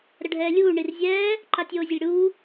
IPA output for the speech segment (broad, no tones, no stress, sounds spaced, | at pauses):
ɾ ə ɖʱ ɛː lʲ uː ɳ i r zʲ ɛː | ǃ a tʲ oː zʲ ə lʲ ɽ uː